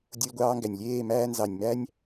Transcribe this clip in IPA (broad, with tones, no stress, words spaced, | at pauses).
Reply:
dʲo˧lʲɡʷɑː˧ŋɡæ˨nʲlʲeː˦˨ mæː˧nzɑ˨nʲ mæ˦nʲ